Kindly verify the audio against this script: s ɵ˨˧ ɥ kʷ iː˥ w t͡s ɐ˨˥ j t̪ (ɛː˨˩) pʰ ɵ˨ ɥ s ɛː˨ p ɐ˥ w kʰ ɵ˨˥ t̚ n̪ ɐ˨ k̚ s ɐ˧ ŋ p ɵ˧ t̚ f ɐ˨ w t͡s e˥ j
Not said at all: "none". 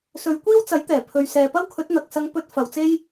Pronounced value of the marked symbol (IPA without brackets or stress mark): ɛː˨˩